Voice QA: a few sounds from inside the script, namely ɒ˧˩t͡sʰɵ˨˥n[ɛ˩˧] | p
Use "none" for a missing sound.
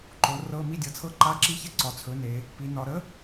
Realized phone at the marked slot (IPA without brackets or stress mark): e˩˧